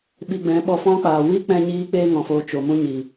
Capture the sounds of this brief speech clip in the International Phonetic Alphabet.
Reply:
ɓ i˧ ɡ͡b ɛ̃˨˦ ɓ ɔ˧ f ɔ̃˦ k͡p aː˨ w i˦ k͡p ɛ̃˦ ɲ iː˦ k͡p eː˦ ŋ ɔ̃˨ f oː˧ t͡ʃ o˨ m ũ˦ ɲ i˨

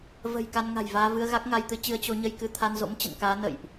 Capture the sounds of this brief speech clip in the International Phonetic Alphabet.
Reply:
v ə̤˨˩ j k a˧ n ŋ a̤˨˩ j v aː˧ v ɨ˧ ə̯ ɣ a˦˥ k̚ ŋ a˧ j t̪ ɨ˨˦ t͡ɕ ɨ˨˦ ə̯ t͡ɕ o˨˦ ɲ ə˧ j k ɨ˨˦ t̪ʰ a˧ n z o̰˧˥ m t͡ɕ ə̰˧˨ n k aː˨˦ n ə̰˧˨ j ʔ

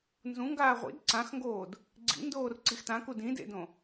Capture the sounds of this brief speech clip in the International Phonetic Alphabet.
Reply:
n z ũ ŋ ɡ aː ʁʷ ḭ d ǀ ã x ŋ ɡ oː d | ɡ͡ǀ ḭ n d oː r ǀ i x t ã k u d ĩ d ḛ d õ

